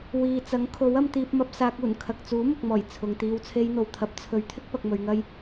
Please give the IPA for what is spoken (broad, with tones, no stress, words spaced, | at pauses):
wiː˨t͡sɐ˨˥ŋkʰo˨˥wɐ˧m t̪iː˧p̚mɐ˧p̚saː˧k̚ uː˨˩n kʰɐ˨k̚t͡suː˨˥ mʊ˨k̚mɔː˨˩j t͡sʰʊ˨ŋt̪iː˧w t͡sʰe˧jn̪o˨wt̪ʰɐ˨˥p̚ t͡sʰɵ˨˧ɥt̪ʰɪ˥k̚ pɐ˧k̚mɵ˧ɥŋɐ˥j